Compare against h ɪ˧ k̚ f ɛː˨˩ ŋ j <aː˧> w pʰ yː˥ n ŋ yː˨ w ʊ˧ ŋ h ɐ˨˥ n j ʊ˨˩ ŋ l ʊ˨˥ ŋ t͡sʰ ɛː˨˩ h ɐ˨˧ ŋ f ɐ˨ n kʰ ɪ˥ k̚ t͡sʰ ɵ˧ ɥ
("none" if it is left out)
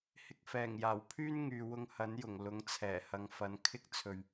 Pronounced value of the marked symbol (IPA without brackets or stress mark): aː˨˩